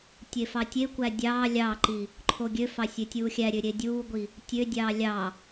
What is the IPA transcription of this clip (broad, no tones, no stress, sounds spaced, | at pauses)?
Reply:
tʲ e f ɑ tʲ e kʷ æ dʲ ɑː lʲ ɑː ǃ i | ǃʰ o ɡʲ ø f ɑ sʲ ø tʲ uː xʲ æ ɾʲ ø ɾʲ e dʲ uː ɡʷ i | tʲ ø dʲ ɑː lʲ ɑ